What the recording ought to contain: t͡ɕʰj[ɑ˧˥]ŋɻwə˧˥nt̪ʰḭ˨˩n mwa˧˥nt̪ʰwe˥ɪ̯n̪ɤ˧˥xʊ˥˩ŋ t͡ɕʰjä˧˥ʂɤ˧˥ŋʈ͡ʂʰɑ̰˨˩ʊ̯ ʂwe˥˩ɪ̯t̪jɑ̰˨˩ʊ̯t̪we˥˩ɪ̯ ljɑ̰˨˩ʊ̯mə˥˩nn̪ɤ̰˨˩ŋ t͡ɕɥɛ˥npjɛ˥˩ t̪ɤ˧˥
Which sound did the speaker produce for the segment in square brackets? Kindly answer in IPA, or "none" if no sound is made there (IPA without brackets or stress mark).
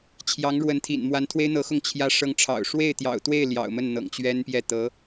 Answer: ɑ˧˥